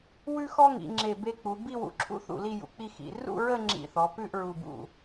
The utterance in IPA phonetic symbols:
w ʉ˥ x ɔ˥ ŋ ḭ˩˧ ŋ͡ǁ e˧˩ b e˧ k͡p u˩˧ b i˥˧ w ṵ˧˩ ǁʰ ṵ˥ θ ṵ˧˩ l i˥˧ j ṵ˩˧ k͡p i˥˧ x ḭ˩˧ r ṵ˥˧ ɹ ə˥˧ ŋ͡ǁ ḭ˧˩ θ ɔ˩˧ p ʉ˥˧ ʔ ɹ u˧˩ b ṵ˧˩

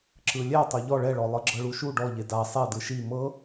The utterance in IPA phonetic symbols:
ǁ ɯ lʲ ɛ tˤ o ʎ ɔ ɭ ɛ ɭ ɔ lˠ ɯ ɡ͡ǁ ɤ ɭ u ʃ u ɖ ɔ ʎ e d a sˤ e d ɯ ʃ i m ɤ

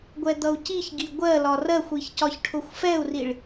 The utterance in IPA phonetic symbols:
ɡʷ ɛ d̪ ʌ u̯ c i ç ɡ i ɡʷ ɜ l ɒ r ɜ xʷ i ç c ɒ ç ʈʰ ʊ xʷ f ɛ u̯ r i ɭ

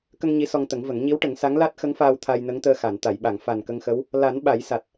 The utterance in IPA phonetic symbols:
k ə˧ ŋ ɲ i˧˥ s ɔ˧ ŋ t̪ ə˨˩˦ ŋ v ə˨˩˦ ŋ ɲ i˧˥ w ʈ ə˨˩˦ ŋ s a˧˥ ŋ l a˦˥ t̚ x ə˧˥ ŋ f aː˧ w t̪ʰ a˧ j n ə˧˥ ŋ t̪ əː˧ x a˨˩˨ n t̪ a˨˩˨ j ɓ a˨˩˨ ŋ f a˨˩ n k ə˧ ŋ x ə˧˥ w | l a˨˩˦ n ɓ a˨˩˦ j s a˨˩ t̚

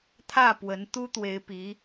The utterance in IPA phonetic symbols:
t̪ʰ ä˥˩ p w ə˧˥ n t̪ u˥ t̪ w e˧˥ ɪ̯ p i˧˥

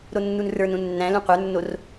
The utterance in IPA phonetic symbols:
ɾ o nː u n r ə˞ n ũ nː æ̃ l ũ qʷ ə˞ nː o r

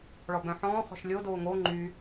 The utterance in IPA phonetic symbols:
ɭ ɔ b œ̃ ħ ɔ̃ː χ ɔ̤ ʃ lʲ o d oː ŋ o ŋ͡ǃ y

